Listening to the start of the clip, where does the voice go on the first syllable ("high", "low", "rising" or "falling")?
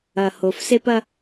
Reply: low